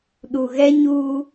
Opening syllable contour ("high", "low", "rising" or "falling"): low